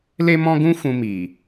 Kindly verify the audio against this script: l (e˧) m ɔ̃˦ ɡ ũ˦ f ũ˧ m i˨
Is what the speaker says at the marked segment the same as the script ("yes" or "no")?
no